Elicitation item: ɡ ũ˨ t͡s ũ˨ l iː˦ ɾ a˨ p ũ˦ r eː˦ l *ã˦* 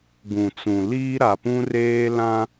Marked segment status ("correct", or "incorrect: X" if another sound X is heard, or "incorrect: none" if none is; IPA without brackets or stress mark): correct